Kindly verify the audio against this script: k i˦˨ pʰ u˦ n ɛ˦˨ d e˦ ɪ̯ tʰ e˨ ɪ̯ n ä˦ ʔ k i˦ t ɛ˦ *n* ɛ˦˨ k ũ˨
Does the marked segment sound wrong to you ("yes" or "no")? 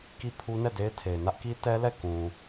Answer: yes